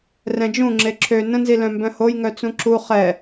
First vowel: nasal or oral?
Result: nasal